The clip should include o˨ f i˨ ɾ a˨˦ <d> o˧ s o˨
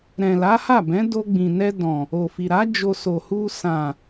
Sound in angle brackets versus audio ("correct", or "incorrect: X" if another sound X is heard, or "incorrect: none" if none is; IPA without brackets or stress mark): incorrect: d͡ʒ